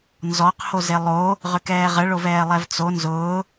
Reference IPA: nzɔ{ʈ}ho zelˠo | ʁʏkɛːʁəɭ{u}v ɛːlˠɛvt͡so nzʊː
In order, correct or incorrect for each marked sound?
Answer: incorrect, incorrect

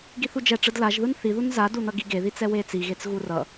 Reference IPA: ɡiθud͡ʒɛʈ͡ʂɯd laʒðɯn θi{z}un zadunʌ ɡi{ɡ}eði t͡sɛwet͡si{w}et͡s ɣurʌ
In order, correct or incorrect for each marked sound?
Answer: incorrect, correct, incorrect

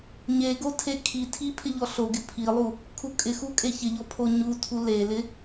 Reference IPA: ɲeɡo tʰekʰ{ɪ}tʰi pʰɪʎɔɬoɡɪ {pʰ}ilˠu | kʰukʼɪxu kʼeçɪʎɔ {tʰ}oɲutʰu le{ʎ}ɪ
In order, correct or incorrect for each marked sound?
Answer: incorrect, correct, incorrect, incorrect

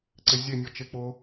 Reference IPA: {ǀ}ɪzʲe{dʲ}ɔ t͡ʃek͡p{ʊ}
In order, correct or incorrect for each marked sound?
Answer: correct, incorrect, correct

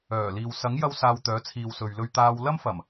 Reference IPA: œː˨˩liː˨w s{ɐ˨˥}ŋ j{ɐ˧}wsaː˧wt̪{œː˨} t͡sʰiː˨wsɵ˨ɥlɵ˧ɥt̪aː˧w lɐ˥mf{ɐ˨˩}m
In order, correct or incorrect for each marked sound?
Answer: correct, incorrect, incorrect, correct

